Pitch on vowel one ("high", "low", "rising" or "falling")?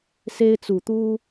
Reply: high